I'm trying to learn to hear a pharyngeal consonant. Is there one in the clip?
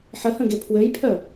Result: yes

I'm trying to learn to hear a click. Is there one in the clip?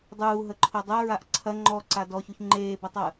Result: yes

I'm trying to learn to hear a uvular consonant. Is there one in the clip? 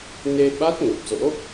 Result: no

